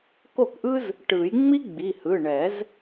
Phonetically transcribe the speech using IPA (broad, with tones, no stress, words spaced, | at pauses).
ko˥˩kʔɯ˥z | ʈɯ˨˩˦j ŋ͡mi˥ɡ͡bi˩˧˩hɯ˩˧˩ɳɛ˨˩˦z